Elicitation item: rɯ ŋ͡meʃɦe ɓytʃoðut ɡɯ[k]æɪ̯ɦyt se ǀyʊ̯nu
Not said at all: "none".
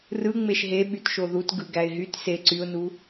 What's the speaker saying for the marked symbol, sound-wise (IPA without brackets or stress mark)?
ɡ